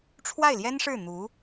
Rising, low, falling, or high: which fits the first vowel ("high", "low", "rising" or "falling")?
falling